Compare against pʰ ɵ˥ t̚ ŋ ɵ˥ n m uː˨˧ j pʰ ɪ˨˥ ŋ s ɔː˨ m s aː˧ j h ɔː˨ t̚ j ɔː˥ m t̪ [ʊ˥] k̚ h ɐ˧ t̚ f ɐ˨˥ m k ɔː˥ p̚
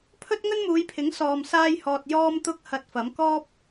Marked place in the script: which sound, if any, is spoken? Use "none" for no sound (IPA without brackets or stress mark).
ʊ˥